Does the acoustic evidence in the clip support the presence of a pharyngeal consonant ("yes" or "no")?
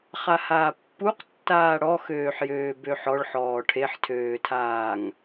yes